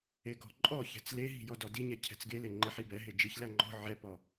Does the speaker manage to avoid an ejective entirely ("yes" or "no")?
no